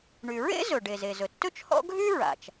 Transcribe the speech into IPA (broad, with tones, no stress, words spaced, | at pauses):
ɳy˩ɹḛ˥ zɵ˩ɖe˩z e˩zɵ˩tːɵ˥t͡ʃhɔ̰˥ ɡʱy˥ɹa̰˩t͡ʃ